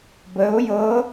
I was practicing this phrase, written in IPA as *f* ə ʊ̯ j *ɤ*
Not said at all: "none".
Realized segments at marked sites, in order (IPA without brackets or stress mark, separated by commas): b, ɤ